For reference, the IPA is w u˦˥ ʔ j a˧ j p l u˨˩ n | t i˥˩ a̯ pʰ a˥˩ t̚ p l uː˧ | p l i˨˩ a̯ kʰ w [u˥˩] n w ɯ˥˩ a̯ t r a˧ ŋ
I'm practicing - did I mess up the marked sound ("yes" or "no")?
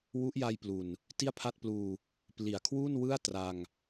no